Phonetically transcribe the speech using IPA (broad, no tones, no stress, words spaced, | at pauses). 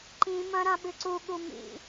ǃĩmɐ̃ ɾãɓɨǀuɠu mḭ